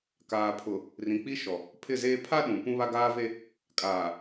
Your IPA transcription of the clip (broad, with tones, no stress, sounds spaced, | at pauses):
k aː˨ pʰ ʊ˨ | r ĩ˨ k͡p i˦ ʃ ɔ˨ | pʰ ɪ˦˨ z eː˦ pʰ a˦ ɗ ũ˨ p ũ˦ β a˦ ɡ aː˦ v e˦ | kʼ aː˨